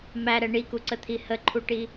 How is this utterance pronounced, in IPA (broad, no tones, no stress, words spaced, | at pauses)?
mæɾɛ ɳikuǀət̪ʰi həǃʰuʈi